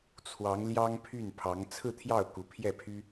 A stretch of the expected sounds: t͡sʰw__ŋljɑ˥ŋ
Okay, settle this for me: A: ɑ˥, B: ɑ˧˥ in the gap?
B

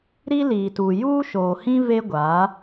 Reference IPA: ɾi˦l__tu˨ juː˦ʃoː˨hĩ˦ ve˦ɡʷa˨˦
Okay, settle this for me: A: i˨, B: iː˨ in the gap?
B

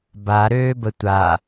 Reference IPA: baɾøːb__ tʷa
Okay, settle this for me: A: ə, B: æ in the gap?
A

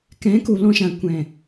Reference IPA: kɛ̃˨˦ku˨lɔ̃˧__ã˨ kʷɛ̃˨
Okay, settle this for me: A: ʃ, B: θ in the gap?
A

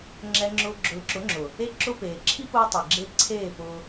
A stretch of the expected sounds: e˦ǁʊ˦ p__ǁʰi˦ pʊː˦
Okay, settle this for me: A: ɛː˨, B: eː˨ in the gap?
B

